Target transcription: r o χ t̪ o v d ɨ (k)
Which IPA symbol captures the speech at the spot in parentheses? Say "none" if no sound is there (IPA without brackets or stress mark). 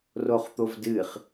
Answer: χ